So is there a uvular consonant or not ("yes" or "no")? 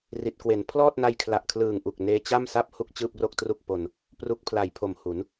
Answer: no